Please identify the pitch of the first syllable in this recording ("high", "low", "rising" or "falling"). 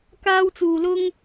high